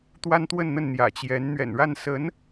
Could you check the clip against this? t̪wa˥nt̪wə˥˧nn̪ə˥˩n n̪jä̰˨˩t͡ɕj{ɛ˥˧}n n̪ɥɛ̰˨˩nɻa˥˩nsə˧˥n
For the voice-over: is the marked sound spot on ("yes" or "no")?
no